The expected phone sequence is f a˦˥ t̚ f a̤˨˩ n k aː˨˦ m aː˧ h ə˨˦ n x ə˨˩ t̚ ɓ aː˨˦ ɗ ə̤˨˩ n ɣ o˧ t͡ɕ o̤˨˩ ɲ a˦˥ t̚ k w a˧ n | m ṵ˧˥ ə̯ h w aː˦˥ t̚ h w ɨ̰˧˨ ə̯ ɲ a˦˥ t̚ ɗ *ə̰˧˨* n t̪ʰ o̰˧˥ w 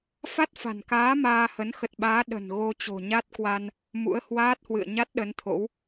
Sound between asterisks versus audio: incorrect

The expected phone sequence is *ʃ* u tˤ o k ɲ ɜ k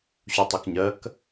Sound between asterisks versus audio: incorrect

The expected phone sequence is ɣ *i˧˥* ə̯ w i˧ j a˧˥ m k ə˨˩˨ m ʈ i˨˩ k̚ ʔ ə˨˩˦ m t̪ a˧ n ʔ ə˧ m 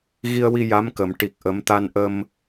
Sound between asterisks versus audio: incorrect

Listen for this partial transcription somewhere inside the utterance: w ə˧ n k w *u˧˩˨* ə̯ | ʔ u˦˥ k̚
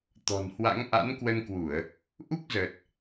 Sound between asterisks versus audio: correct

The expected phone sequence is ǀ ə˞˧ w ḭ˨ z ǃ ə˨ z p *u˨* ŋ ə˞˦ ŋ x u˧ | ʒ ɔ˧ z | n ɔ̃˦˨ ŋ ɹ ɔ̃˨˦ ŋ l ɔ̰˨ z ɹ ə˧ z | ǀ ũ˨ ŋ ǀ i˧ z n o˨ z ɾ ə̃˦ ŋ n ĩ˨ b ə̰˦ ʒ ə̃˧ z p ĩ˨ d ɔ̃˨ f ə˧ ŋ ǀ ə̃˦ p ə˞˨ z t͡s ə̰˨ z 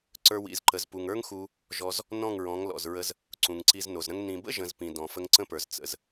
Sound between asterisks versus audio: correct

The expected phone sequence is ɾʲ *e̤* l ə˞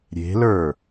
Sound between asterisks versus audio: correct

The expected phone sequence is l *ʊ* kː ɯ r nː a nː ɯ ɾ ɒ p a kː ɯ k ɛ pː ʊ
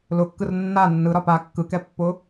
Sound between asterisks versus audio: correct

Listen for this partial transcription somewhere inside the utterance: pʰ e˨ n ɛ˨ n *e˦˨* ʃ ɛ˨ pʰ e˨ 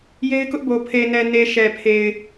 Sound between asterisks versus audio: incorrect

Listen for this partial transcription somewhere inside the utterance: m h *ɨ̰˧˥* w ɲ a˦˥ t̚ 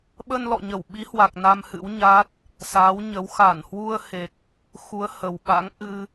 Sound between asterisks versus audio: correct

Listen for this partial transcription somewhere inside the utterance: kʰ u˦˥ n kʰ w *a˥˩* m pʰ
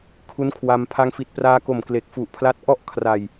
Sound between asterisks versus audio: incorrect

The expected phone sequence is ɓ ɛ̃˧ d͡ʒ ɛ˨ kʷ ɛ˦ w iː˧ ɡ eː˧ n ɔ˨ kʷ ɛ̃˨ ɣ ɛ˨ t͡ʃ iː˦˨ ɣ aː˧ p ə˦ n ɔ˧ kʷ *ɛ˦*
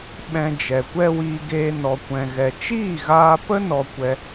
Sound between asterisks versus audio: incorrect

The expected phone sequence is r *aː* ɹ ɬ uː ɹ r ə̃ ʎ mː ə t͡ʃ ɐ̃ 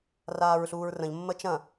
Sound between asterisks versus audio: correct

